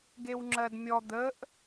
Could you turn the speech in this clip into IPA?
ɡewŋ͡ǁɜdmʲɔ d̪əʔ

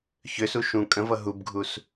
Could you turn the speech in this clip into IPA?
çøsu ʃũ kʼə̃vʌ ɦubɡʱus

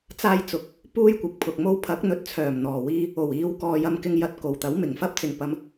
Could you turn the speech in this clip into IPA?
t͡saː˧jt͡sʊ˨k̚ | puː˥jkʷɪ˨˥k̚pʰʊ˨k̚mo˥w pʰɐ˨˥k̚n̪ɵ˨˥t̚t͡sʰœː˨˩m n̪ɔː˨˩wiː˧ | o˨˩wiː˨˧wkɔː˨ jɐ˨mkɪ˨ŋ jɐ˨t̚ ko˨˩wt̪ɐ˨˥wmɪ˨˩ŋfɐ˥p̚ t͡sɪ˨˩ŋpɐ˨m

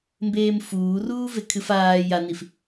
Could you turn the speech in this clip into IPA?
mbeːmfuːruː vekʰɨfaː janif

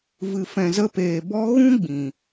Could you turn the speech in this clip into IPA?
vɨ˨fɛ̃˨zə˧peː˨ bɔ˧ɣũ˦ ɡ͡bĩ˨

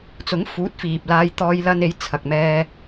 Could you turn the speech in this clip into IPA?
t͡sʊ˨˥ŋfuː˨˥t̚fiː˨p̚ laː˧jt̪ɔː˧jlɐ˧ne˨˥j t͡sʰɐ˨k̚mɛː˧

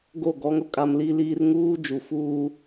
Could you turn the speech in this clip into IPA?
ɡo˦˨ɡɔ˦ŋ ʊ˦kʼa˦mli˦ liː˦r ŋuː˦d͡ʒu˨fuː˦

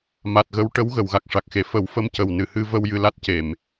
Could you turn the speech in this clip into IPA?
ma˨˩t̚ɣə˧˥w ʈə˧˥w ɣə˨˩˨wɣa˨˩k̚ʂa˨˩k̚xe˨˩˨ fə˨˩˦wfə˧mcə˨˩w nɨ˨˩˨hɨ˧ və˧w jɨ˧la˦˥t̚ ce˨˩˨m

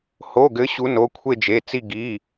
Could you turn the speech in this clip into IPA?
ho˩˧˩ɡɘ˨˦ ɕu˨˦no˩˧˩ kʷʰe˦˨d͡ʒe˩˧˩t͡si˦˨ ɡi˩˧˩

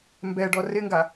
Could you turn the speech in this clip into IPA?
mbɛɖɔ rɪŋɡa

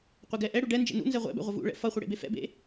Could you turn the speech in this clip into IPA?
qʷeɡɛʔɛɽu ɖɛ nd͡ʒḛnṵnzɛ ʁʷɛ̰bɛ̰ ʁʷɪvṵɭɛ̰ fʌχʷɪ ɽḛbefɛ̰bḛ

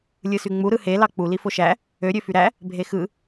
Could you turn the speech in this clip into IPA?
lʲɯsyŋ͡mu ɾɯhe lɑk͡pu lifoʃæ | ø ɾʲøfyɾæ | bʱexɯ

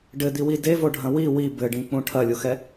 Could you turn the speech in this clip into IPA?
ɖɘd̪iwi devoɖʱɐ̃ wi wi bɘɖĩk͡pũ ʈʰɐlʲuxɛ

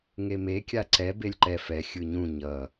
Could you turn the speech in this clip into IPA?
ŋeme kʲaǀɛ belʲǃɛ fɛ xʲɯɲũ ɲʌ

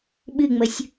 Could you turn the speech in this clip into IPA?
ɓɨŋ͡məsʲ

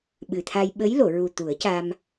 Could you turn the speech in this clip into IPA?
ɓɨ˨˩t̪ʰa˧j ɓə˧˥jlo˨˩˨ɹu˨˩ t̪u˨˩˦ə̯ca˧m

